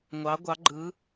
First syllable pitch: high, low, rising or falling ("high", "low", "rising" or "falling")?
rising